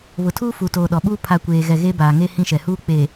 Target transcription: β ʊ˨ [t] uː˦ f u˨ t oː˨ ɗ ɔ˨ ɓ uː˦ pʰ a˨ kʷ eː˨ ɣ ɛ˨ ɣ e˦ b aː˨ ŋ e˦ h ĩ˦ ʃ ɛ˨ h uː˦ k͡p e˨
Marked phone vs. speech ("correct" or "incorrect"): incorrect